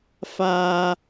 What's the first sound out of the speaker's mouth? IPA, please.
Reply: f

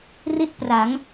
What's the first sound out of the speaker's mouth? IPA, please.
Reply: r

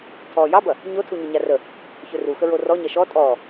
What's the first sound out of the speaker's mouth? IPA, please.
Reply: tʰ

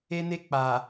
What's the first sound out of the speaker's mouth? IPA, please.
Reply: e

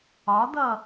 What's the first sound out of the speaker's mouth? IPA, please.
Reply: ɒ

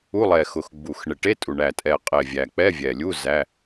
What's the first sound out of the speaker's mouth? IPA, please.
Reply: u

